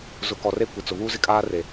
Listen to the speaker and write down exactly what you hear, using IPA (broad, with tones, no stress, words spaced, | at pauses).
zʊ˨˦kɔ˨re˦ kʷɪ˨t͡sʊ˨ βuː˦zɪ˦kʼaː˦re˨